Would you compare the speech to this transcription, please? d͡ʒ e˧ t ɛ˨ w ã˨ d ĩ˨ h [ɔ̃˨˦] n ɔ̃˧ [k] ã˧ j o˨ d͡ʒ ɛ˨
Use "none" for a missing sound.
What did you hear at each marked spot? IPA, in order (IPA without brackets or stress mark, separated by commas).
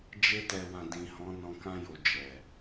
ɔ̃˨˦, k